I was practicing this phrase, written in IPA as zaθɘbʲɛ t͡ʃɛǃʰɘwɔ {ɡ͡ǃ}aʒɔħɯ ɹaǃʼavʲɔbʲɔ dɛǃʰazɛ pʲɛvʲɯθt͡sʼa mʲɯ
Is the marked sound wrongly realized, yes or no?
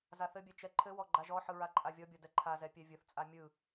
no